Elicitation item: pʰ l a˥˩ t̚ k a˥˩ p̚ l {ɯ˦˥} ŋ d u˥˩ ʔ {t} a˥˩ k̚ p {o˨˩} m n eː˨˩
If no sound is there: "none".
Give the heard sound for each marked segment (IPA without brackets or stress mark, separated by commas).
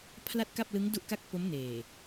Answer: ɯ˦˥, k, o˦˥